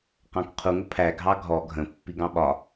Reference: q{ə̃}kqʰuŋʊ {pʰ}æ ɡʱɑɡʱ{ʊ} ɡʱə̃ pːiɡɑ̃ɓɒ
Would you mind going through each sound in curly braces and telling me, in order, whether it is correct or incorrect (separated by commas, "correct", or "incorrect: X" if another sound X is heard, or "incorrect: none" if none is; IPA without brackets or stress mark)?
incorrect: ɑ̃, correct, incorrect: ɔ